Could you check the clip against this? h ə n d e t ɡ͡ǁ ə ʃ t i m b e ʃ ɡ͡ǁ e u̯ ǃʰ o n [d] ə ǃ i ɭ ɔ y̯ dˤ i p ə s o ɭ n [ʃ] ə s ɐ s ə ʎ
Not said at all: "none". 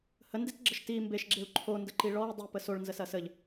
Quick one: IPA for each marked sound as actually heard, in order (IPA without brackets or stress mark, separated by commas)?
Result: d, z